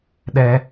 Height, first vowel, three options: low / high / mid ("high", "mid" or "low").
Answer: mid